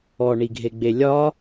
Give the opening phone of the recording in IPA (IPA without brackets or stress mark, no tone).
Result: ɔ